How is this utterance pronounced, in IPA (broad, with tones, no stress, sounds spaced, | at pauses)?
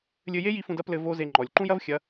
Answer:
lʲ ɘ˧ j e˦ j i˧ f ũ˧ d ɐ˦ p l ɘ˧ v o˦ z e˧ ŋ͡ǃ ɔ˨ lʲ ǃ ũ˦ j ɐ˦ v xʲ ɐ˨˦